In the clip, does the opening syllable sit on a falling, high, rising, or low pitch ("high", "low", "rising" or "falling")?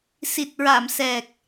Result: low